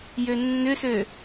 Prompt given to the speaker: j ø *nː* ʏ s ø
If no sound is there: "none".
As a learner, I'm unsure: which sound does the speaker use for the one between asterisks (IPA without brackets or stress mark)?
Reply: nː